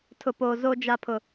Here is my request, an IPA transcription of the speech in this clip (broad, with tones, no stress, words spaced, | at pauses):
tʰʊ˨poː˨ zo˨d͡ʒa˨pʰʊ˨